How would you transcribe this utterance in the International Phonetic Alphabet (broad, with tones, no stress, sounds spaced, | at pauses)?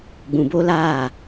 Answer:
ɡ͡b ũ˨ b o˦ l aː˦˨